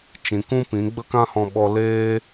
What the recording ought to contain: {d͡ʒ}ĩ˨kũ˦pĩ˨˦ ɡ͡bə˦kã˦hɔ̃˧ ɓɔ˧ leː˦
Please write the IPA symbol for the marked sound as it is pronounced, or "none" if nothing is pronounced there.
t͡ʃ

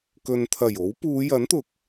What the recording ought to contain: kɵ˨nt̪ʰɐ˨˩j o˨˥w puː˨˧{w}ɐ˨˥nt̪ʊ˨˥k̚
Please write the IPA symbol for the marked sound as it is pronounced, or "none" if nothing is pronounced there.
j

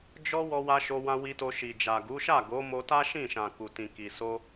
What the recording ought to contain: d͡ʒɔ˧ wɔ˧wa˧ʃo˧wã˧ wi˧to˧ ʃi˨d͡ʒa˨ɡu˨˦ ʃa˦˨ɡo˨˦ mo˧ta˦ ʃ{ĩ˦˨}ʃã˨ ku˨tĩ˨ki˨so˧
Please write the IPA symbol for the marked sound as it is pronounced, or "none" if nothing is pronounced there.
ĩ˦˨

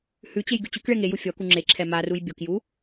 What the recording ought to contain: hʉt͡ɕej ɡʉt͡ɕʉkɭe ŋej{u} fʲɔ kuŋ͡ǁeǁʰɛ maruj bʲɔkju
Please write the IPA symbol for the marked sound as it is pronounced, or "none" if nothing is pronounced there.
u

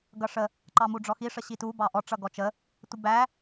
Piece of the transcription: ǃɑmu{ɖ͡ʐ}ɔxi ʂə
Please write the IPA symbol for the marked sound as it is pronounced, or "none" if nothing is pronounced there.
ɖ͡ʐ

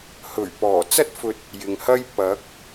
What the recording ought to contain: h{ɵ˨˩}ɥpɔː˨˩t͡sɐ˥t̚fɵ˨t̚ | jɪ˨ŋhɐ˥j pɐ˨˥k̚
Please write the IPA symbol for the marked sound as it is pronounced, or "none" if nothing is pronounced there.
ɵ˨˩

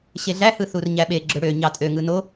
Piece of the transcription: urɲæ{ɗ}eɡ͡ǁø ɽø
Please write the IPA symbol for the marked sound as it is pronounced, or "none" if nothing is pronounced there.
ɓ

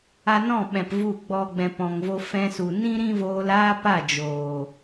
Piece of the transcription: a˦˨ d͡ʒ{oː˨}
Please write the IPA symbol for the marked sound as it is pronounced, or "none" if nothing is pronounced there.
oː˨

